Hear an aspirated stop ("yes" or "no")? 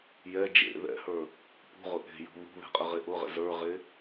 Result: no